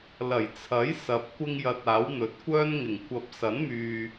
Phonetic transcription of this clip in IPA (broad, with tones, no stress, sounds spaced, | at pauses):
l ɐ˨˩ j t͡sʰ ɐ˨˥ j s ɐ˨ p̚ kʷ ɪ˧ ŋ j ɐ˨ t̚ aː˨˥ w n̪ ɵ˨˥ t̚ kʷ œː˥ n ŋ ɪ˨˩ ŋ kʷ ɐ˨˥ p̚ s ɐ˨˥ n m yː˨